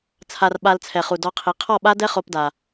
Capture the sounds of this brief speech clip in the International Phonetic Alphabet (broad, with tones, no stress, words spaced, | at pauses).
t͡sʰa˨r ɓa˧lt͡sʰɛ˨χu˨ dɔ˧qʰi˨˦ qʰɔ˦˨ɓa˦dɛ˦ χo˧pda˨